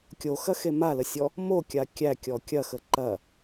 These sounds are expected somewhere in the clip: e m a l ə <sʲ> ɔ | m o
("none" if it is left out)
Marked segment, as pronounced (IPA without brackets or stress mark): sʲ